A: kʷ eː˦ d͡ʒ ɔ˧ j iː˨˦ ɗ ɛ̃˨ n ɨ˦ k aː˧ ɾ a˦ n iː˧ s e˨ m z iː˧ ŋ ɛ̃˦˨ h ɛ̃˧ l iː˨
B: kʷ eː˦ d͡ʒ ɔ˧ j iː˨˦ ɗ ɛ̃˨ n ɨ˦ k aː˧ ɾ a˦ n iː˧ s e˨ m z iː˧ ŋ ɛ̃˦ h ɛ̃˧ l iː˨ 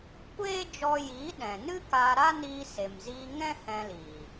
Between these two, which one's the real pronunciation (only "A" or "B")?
B